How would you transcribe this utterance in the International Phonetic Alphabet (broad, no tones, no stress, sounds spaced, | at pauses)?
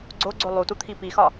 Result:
ɡ͡ǀ o ɡ͡ǀ o lˠ u t u t̪ʰ i p i x ɒ